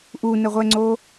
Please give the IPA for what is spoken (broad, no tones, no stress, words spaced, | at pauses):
ʔunəʁʷɛŋ͡ǀo